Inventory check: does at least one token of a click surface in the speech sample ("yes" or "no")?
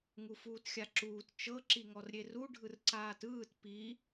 yes